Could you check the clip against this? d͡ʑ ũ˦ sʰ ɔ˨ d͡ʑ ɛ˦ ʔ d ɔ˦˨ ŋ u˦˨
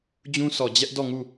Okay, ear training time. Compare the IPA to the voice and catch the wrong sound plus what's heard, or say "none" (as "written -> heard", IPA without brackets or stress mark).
none